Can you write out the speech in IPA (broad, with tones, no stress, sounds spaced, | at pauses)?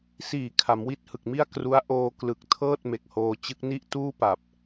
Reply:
s iː˨˩ kʰ a˩˦ m w i˦˥ t̚ h ɯ˨˩ k̚ m i˥˩ a̯ k r u˦˥ a̯ ʔ oː˧ k l ɯ˨˩ k̚ tʰ ɤː˥˩ t̚ m e˨˩ k̚ h oː˧ t͡ɕ ɯ˦˥ k̚ n i˥˩ ʔ t uː˥˩ p a˨˩ p̚